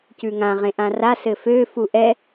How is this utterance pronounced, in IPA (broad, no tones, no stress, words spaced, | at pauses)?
cʉŋã ʁẽʔãra sɘfø fuʔɛ